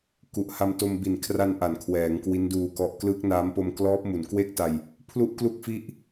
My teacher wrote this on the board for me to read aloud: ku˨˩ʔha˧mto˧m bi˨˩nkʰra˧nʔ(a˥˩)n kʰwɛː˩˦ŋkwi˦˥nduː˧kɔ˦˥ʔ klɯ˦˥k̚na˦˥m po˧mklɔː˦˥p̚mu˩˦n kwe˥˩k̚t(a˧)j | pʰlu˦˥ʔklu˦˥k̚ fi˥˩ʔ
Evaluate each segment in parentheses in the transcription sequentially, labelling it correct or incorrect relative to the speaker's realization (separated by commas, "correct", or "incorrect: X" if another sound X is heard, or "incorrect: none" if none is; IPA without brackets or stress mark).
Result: incorrect: a˩˦, correct